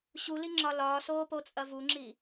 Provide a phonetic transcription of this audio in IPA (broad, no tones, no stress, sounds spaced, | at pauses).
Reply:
ɕ u l i ŋ͡ǁ ɒ l ɒː s oː p o t͡sʼ ɐ v u ŋ͡ǁ i